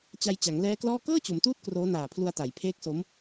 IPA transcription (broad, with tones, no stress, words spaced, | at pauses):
t͡ɕa˧jt͡ɕa˩˦ŋlɛː˦˥klɔː˥˩ kɤː˥˩t͡ɕo˩˦mtuː˦˥t̚ kroː˦˥naː˨˩ pʰlu˧a̯ta˩˦jpʰeː˦˥k̚so˦˥m